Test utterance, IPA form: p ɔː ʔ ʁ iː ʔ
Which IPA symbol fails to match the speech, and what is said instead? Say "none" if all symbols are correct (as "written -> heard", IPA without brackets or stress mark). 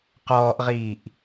p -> q